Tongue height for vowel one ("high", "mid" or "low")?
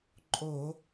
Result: mid